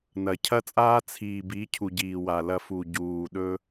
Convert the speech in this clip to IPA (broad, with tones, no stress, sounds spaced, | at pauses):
n ɐ˨ cʰ ɐ˦ t͡sʼ aː˦ t͡sʰ iː˨ b i˨˦ cʰ u˨ ɟ iː˨ w a˨ l ɐ˧ f u˨ ɟ uː˨ ɗ ɵ˧